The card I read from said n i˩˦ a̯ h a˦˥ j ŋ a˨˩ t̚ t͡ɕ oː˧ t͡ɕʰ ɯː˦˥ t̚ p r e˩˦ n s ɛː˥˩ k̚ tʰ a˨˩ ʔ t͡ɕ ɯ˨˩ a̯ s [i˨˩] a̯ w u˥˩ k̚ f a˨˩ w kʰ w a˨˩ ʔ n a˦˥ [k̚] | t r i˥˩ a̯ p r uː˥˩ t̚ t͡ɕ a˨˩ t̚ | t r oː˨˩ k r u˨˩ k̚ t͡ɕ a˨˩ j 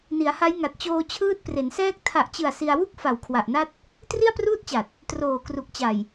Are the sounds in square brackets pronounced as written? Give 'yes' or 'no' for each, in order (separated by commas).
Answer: no, no